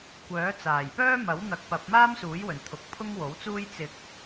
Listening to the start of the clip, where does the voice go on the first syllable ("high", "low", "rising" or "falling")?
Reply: rising